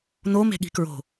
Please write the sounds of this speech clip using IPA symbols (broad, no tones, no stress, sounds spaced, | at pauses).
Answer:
n o m e̤ ɠ i̤ k ɹ o̤